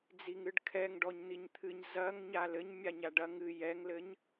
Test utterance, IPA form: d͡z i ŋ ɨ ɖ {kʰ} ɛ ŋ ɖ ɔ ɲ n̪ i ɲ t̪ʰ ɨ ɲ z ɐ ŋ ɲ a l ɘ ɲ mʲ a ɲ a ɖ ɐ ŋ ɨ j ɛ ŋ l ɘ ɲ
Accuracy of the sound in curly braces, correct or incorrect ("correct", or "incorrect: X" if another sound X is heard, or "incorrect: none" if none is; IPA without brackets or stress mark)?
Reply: correct